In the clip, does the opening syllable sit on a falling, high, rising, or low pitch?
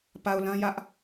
low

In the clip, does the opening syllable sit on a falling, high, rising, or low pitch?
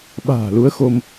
low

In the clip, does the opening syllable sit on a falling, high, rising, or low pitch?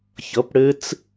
rising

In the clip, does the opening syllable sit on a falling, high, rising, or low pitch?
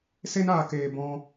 high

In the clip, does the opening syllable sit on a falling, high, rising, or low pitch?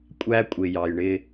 high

